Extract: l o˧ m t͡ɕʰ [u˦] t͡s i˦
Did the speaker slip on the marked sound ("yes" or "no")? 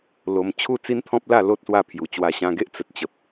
yes